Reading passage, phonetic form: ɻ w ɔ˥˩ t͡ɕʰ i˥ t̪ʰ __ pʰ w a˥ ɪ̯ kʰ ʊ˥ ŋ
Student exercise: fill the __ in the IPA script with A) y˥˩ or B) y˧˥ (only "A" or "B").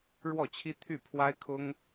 A